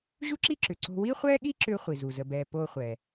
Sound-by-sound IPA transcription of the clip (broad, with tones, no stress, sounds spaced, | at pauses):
ʑ u˥ ǁ i˥ ǁ ʏ˩ ǀ o̤˧ w i˥ χʷ ɛː˥ ɠ i˥ ǁ ʏː˥ χʷ i˩ z u˩ z ə˧ b ɛː˧ p oː˥ χʷ ɛ˩